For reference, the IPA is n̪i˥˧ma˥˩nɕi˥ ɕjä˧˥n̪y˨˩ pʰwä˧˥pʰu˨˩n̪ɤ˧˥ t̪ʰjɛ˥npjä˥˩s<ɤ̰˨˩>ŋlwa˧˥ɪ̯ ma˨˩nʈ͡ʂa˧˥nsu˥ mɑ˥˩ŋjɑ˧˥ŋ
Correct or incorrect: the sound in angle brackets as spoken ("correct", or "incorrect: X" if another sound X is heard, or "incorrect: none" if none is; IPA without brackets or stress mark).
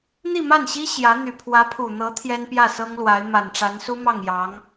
incorrect: ɤ˥